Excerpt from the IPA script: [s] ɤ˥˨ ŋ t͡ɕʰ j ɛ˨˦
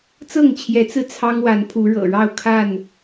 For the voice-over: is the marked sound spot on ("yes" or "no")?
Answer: no